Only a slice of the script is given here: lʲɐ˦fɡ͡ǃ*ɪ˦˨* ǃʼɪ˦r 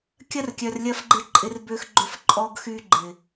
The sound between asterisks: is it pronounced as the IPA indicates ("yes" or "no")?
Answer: yes